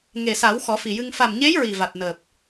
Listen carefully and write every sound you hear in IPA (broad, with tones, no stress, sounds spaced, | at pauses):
ŋ e˨˩ s a˨˩˦ w x ɔ˨˩˦ f i˨˩ j ɨ˧ ŋ f a˨˩ m ɲ e˧˥ j ɹ i˨˩ v a˨˩ t̚ n əː˨˩ p̚